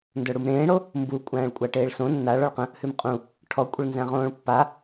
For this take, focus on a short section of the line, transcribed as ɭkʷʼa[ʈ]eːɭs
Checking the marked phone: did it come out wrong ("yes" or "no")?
no